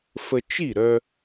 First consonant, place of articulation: labial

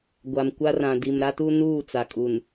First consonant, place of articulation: velar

